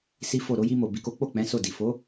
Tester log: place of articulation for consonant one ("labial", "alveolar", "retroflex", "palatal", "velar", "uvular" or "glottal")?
alveolar